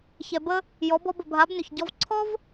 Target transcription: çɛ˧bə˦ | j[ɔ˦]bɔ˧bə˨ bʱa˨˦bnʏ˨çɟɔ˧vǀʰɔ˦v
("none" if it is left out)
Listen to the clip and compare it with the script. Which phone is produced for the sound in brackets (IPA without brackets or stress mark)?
ɔ˨˦